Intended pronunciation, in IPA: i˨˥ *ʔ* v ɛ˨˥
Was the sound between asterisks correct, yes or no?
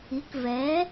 no